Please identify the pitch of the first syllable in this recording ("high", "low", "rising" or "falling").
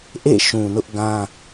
falling